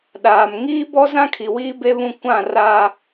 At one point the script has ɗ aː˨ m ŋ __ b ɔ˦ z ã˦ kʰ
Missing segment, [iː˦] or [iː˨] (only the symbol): iː˦